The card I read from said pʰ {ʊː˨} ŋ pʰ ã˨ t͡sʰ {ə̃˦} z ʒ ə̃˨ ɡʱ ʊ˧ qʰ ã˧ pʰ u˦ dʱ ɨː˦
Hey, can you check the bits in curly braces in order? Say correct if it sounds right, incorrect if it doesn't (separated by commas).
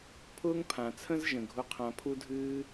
incorrect, correct